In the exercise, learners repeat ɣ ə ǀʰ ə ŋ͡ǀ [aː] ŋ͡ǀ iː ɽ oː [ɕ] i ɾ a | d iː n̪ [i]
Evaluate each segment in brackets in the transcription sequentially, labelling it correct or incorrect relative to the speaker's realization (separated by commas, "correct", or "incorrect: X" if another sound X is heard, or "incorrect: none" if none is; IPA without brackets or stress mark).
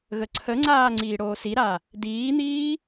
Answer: correct, incorrect: s, incorrect: iː